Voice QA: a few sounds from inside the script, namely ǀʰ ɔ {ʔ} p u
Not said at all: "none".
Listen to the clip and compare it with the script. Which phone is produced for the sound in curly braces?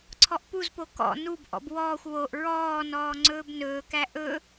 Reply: ʔ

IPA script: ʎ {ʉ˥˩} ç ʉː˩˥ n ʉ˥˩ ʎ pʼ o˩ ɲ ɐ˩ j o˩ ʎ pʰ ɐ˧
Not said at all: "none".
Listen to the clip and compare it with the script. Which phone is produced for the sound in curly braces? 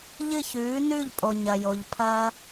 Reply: ɨ˥˩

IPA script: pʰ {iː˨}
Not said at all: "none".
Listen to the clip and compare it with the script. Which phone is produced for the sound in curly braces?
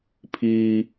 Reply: iː˦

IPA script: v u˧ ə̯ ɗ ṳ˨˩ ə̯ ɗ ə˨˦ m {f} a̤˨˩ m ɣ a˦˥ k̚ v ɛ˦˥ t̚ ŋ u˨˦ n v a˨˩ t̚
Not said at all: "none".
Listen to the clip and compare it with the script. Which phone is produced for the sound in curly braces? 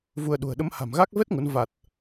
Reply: h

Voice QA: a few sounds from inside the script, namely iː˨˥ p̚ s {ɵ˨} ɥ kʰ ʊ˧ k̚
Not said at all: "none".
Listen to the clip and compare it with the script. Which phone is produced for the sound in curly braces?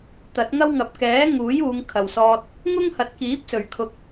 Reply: ɵ˨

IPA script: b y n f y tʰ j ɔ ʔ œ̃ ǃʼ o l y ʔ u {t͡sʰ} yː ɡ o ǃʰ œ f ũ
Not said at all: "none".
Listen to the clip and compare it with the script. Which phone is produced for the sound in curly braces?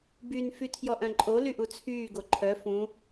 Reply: t͡sʰ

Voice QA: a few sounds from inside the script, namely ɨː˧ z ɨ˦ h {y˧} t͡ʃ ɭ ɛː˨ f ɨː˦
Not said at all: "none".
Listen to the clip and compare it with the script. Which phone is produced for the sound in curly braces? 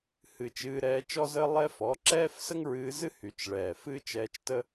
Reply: y˧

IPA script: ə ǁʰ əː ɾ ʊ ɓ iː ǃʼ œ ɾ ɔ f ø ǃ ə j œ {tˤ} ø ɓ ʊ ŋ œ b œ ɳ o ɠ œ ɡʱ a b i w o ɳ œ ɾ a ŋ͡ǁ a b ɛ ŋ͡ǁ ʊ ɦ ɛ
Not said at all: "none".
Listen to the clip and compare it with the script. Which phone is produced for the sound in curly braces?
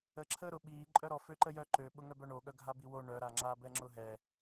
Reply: ǃ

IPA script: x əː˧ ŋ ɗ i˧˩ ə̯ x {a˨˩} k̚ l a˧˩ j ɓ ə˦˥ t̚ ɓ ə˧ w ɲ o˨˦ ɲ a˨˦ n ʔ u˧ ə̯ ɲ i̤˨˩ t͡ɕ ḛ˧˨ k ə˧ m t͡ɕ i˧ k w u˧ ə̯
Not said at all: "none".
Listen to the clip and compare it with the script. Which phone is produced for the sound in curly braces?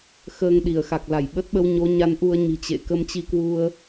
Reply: a˨˩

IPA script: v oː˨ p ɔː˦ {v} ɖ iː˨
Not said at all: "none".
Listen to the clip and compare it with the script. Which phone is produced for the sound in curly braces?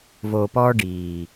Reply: none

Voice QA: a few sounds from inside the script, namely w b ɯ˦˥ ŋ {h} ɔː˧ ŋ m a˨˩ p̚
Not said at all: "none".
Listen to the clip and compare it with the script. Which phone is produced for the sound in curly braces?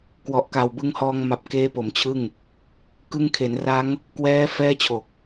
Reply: h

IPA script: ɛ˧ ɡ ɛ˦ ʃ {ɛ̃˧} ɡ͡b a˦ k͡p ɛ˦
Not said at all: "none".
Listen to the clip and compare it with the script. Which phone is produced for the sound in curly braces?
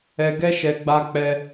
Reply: ɛ˧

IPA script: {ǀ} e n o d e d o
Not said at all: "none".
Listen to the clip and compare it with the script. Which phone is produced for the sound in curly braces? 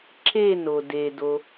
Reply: ǁ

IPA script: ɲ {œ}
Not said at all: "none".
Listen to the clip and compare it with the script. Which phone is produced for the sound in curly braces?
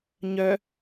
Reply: œ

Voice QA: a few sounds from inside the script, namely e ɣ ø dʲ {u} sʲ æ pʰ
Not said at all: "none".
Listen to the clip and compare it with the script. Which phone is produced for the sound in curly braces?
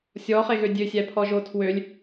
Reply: ø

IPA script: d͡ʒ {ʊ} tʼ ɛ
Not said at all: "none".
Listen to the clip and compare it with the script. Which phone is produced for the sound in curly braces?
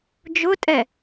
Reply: ʊ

